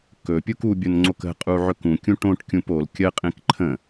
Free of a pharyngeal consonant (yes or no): no